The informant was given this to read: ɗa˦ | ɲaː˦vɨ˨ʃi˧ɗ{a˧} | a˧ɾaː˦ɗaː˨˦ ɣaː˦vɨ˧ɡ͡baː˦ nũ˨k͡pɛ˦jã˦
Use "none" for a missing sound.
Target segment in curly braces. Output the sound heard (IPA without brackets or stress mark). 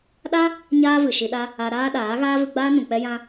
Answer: a˦